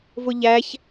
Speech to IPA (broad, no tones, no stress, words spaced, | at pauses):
vʊʎæç